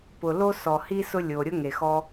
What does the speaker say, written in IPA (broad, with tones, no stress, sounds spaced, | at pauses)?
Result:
p ʊ˩ l o˥ s ɔ˩ h i˥ s ʊ˥ lʲ o˩ ɾʲ ʊ˥ ŋ e˩ x ɔ˧